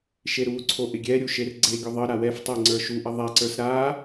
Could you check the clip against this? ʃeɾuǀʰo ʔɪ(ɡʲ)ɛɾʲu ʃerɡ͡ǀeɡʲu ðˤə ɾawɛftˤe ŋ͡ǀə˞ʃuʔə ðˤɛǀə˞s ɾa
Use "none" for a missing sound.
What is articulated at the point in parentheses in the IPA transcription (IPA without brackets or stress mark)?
ɡʲ